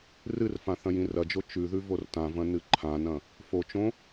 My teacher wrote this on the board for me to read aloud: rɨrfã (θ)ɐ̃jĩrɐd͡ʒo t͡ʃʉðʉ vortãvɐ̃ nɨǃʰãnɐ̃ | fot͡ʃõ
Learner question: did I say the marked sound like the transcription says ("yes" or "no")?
yes